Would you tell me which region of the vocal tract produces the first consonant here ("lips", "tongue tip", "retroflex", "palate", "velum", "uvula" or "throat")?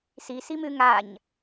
tongue tip